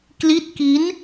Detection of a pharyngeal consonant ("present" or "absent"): absent